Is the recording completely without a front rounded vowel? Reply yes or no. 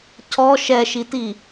yes